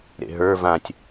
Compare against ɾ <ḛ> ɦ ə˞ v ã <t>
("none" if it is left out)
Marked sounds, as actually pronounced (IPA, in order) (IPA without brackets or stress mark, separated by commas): ḛ, tʲ